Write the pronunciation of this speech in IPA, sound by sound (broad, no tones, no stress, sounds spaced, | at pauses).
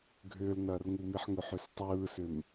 ɡʱ ʏː l n ɐː r ŋ u m i ħ ŋ ʏ ħ ʏ s tˤ ɯː s ʏ m